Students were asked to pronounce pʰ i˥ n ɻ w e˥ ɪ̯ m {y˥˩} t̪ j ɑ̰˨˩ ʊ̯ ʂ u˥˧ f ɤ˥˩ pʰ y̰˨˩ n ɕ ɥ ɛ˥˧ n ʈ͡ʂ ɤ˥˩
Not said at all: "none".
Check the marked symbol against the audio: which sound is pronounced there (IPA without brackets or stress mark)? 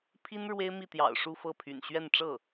i˥˩